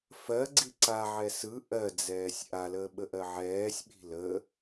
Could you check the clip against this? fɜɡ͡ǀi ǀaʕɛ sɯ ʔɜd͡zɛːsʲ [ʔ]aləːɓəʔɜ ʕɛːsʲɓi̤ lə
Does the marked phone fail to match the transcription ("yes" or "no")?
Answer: no